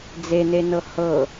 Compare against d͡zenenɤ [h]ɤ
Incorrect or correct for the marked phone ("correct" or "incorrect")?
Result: correct